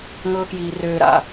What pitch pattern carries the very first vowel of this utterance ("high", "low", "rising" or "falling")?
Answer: high